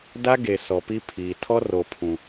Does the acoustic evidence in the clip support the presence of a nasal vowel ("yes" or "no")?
yes